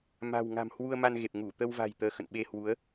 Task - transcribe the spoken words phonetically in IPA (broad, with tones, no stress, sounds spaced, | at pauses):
m a̤˨˩ w ŋ a̤˨˩ m h w u˧ ə̯ m a˧ n ɣ e˨˩ p̚ ŋ u˧˩ t̪ ə˧ w v a̤˨˩ j t̪ əː˨˦ x ə̰˧˨ n ɓ e˧ h w u˨˦ ə̯